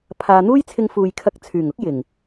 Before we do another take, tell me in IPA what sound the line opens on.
pʰ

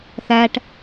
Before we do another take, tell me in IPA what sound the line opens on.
θ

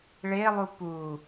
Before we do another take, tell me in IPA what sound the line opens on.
ɭ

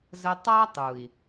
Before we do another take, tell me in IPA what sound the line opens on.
z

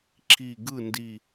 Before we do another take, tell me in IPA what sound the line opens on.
ǁ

